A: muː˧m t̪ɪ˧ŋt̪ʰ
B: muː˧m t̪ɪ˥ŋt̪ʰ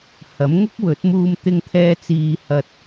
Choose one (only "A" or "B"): A